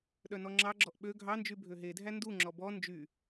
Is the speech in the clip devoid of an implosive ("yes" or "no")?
no